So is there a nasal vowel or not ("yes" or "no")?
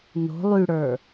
no